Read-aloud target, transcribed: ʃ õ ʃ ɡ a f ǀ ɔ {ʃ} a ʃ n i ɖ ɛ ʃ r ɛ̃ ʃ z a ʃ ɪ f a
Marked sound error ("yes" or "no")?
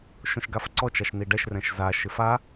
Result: yes